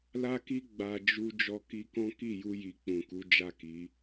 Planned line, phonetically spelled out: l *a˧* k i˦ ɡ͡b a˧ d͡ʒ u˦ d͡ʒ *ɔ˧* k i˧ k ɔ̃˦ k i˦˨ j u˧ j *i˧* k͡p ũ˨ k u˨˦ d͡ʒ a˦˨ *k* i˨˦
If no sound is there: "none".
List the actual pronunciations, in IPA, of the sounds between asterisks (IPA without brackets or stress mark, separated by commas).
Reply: a˦, ɔ˧, i˧, k